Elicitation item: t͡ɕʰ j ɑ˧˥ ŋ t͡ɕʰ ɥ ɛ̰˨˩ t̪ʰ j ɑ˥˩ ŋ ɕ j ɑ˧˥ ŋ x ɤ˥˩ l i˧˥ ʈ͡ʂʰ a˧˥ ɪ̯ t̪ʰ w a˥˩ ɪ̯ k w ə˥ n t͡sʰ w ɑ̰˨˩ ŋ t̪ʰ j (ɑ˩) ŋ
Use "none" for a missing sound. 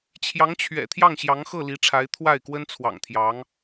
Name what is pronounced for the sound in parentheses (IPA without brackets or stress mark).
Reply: ɑ˧˥